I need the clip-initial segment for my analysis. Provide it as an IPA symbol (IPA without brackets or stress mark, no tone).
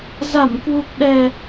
z